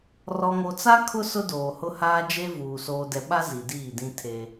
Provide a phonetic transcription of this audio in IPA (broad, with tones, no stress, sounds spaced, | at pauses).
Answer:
r ɔ˨ ŋ o˨ t͡s a˦ kʰ ʊ˦ s ʊ˦ d oː˨ h ʊ˦ h aː˦ d͡ʒ e˦ v uː˨ s oː˨ d ɛ˨ ɓ a˦ z i˨ d iː˦˨ d ĩ˦ tʰ e˦